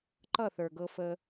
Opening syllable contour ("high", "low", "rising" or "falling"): falling